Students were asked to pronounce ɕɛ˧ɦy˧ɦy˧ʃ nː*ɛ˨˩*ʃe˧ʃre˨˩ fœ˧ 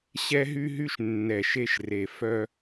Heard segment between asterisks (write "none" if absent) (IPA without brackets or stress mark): ɛ˨˩